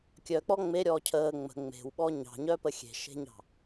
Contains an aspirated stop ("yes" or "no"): yes